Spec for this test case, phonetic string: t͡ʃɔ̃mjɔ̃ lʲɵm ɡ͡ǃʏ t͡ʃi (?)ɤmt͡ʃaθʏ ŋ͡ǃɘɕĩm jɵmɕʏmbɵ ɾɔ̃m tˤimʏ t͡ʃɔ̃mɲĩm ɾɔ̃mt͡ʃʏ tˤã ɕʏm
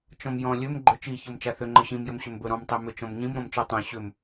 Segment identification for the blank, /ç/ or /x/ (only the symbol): ç